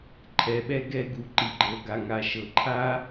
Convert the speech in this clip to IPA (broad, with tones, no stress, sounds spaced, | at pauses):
ǃʰ ɛ˨ ɓ ɛ˧ ɡ ɛ˧ ɡ u˨ ǃ i˨ ɡ͡ǃ ɤ˨ ɡ a˨ ŋ a˨ ʃ ɤ˨ ǃʰ a˦